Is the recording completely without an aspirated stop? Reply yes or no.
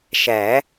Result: yes